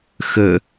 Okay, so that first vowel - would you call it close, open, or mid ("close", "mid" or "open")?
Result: mid